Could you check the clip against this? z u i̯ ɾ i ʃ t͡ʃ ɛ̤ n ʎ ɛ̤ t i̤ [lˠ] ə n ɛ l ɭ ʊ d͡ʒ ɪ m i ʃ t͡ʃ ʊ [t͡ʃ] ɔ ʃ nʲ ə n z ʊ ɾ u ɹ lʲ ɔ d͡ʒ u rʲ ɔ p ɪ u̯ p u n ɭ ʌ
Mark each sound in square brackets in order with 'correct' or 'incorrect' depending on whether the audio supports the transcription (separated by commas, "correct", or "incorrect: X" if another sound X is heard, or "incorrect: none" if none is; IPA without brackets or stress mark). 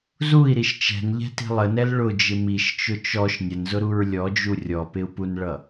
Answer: correct, correct